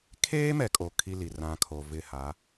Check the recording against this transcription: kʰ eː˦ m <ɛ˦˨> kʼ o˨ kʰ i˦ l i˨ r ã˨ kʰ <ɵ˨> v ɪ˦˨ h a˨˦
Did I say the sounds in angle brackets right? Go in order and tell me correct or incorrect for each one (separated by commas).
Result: incorrect, incorrect